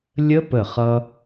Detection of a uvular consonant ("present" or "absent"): present